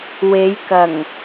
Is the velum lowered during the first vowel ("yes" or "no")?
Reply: no